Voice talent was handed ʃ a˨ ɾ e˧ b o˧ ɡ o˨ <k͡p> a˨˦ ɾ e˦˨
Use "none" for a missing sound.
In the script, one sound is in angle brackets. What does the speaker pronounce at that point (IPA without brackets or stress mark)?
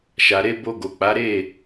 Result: k͡p